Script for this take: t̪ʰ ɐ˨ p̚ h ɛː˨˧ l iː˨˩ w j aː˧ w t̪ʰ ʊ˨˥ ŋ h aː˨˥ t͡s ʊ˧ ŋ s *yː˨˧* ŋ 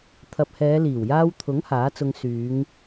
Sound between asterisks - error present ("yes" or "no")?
no